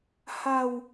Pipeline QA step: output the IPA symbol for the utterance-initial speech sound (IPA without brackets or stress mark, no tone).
h